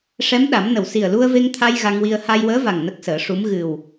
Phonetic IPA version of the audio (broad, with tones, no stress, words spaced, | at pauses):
ʂɛ˧˥mɗa˨˩˦mnə˨˩w si˨˩ə̯lu˧ə̯ve˧ŋt̪ʰa˧j ɣa˧ŋwi˧ə̯ ha˧jwəː˧˥va˨˩ŋ nə˦˥k̚səː˨˩˦ʂu˧˥m ɣɨ˨˩w